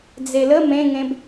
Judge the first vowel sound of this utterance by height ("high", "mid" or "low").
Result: mid